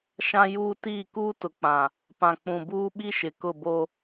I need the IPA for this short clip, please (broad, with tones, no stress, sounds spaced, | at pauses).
ʃ ã˦ j uː˦ t iː˦˨ k uː˦ t ʊ˨ k͡p ã˨ | p ã˨ k͡p ũ˨ b uː˦ ɓ i˦ ʃ ɪ˨ k ʊ˦˨ b o˦